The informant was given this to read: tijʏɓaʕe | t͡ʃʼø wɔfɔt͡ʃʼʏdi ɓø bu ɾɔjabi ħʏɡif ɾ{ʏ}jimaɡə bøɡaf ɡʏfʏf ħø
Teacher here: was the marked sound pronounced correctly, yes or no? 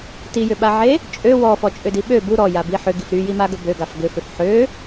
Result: no